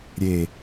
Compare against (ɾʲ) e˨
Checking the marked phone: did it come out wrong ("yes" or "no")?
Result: no